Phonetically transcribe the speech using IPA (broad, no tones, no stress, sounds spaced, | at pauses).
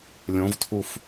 lʲ õ v tʰ u f